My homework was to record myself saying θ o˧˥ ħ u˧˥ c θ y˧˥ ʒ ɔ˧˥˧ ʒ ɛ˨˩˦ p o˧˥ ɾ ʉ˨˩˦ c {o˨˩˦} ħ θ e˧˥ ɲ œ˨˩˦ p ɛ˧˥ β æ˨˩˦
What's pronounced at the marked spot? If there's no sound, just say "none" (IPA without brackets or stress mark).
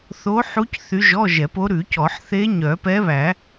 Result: ɔ˨˩˦